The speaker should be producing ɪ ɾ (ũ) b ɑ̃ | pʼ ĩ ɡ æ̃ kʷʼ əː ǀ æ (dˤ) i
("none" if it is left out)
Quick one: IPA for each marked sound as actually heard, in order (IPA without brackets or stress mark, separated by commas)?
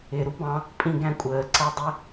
u, dˤ